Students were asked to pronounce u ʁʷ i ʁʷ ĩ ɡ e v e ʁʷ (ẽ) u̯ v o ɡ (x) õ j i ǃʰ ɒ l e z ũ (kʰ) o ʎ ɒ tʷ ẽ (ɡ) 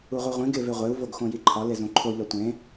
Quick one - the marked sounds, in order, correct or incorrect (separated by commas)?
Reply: incorrect, correct, incorrect, incorrect